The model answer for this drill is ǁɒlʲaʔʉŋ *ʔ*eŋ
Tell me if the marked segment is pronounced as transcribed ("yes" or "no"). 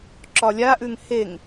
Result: no